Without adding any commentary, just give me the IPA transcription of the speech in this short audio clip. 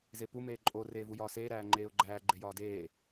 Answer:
z e p u m eː ǃʼ o r eː v u j ɒː s eː ɾ æː ŋ͡ǃ eː ʊ̯ ɡ͡ǃ æː ɡ͡ǃ e j ɒː d eː

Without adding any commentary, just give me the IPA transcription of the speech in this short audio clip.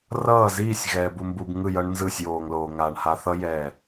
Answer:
r ʌː˦˨ z iː˦˨ sʲ ɣ ɛː˨ b u˧ m b u˧ b ŋ ɯ˦˨ j ʌ˦ ɳ n z ɯ˦˨ sʲ j oː˧ ŋ l oː˧ ŋ aː˧ ɳ h a˦ θ ʌ˦ j ɛ˦˨

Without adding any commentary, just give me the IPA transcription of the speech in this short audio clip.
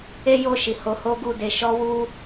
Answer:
e˦ j o˦˨ ʃ i˨ h o˨˦ h o˦ ɡ u˦˨ d e˧ ʃ ɔ˦ w u˦

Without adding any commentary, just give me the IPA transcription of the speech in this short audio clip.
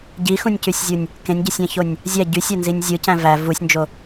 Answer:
ɟ i x ũ nʲ c y sʲ zʲ u nʲ | k ẽ nʲ ɟ e sʲ æ̃ ç o nʲ | zʲ æ ɟ y sʲ æ n z i nʲ zʲ ɯ c æ̃ v æ v u sʲ n d͡ʒ o

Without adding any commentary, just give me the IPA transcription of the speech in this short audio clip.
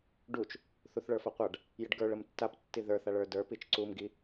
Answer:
ɖ u t͡ʃ | θ u θ ɭ ə˞ f a qʷ a ɖ | j ə ɖ ɡ ə˞ ɭ ə m tː a p tː i ð ə˞ θ a ɭ ə˞ d ə˞ p i t͡ʃ ǀ u m ɡ i

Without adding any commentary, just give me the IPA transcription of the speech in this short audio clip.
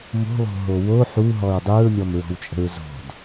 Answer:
m o̤ lˠ o̤ ɦ o w o ħ u ɦ ɔ ɹ dˤ u ɹ mʲ ɔ m ɹ ɔ̤ w t͡ʃʼ ə̤ ɹ z o̤ d

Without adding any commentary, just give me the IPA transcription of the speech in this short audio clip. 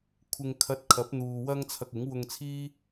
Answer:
kʷʰ ɪ˧ ŋ kʰ ɐ˧ t̚ kʰ ɐ˨˥ p̚ n̪ uː˨ w ɐ˥ ŋ t͡sʰ ɐ˧ k̚ ɪ˨˥ ŋ w ʊ˧ ŋ t͡sʰ iː˥

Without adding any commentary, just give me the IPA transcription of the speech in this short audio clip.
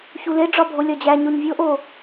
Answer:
ç u l e ɖ͡ʐ ɒ bʱ o lʲ ɒ d͡ʑ æ ɲ o ɲ vʲ o ʔ o

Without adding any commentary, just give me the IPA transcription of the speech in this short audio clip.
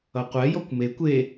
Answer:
ʌ qʷ ɛ j ɔ kʷ m e kʷ e

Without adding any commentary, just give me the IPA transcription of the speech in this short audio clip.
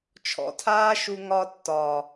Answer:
t͡ʃʰ ɔ̰˧ tʰ aː˦ ʃ u˧ ŋ ɒ˧ tː ɒː˨

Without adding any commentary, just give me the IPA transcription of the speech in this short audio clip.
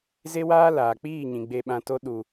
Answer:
z e˦ w aː˦ l aː˨ k͡p iː˦˨ ɲ ĩ˨ ɡ͡b e˧ ɓ ã˧ t o˦ ɗ u˨

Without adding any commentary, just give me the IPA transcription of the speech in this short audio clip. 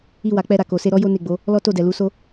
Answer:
i˧ w a˨ k͡p ɛ˧ ɾ a˨ k o˨ s e˧ ɾ ɔ˦ j o˦ n e˦˨ ɡ͡b o˨˦ | l ɔ˦ t o˦˨ d ɛ˨ l u˨˦ s o˦

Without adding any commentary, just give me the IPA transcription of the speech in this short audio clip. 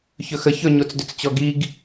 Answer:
ç ɵ x ə ç ɵ ɲ o t͡s d ʏ t͡s t͡ɕ ɔ ɡ i ɡ

